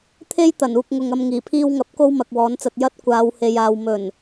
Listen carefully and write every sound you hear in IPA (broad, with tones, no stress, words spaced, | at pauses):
t̪ʰe˥j t̪ɐ˨˩nuː˧k̚ŋʊ˨ŋɐ˧m ŋiː˨˩pʰiː˧wŋɐ˨˥p̚ ko˥wmɐ˨k̚wɔː˨˥nt͡sɐ˧t̚ jɐ˥t̚ kʷaː˨˧whe˨jaː˨w mɵ˨˩n